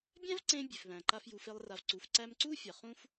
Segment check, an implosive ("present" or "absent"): absent